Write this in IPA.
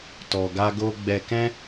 t ɔ˨ ɡ a˧ ɡ o˧ ɡ͡b ɛ˨ k ɛ̃˧

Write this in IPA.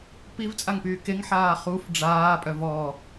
p i v t͡sʼ a ŋ p yː k e ŋ ħ aː χ u f ɖ͡ʐ aː pʼ œ v ɔ

